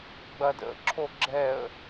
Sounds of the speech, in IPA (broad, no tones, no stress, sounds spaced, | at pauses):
ɡ͡b ɐ d ə̰ ǁʰ o ɡ͡ǁ ɛ ə̯